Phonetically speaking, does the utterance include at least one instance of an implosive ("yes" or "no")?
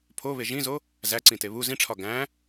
no